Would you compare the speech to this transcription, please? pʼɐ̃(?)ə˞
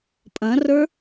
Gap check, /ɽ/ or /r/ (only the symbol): r